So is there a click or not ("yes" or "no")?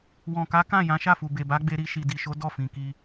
no